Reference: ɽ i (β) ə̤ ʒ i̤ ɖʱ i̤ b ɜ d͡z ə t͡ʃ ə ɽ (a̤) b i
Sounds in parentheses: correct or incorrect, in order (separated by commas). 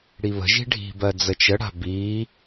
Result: correct, correct